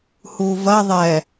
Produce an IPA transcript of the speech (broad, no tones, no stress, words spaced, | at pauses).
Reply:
huvɐ ðˤɛ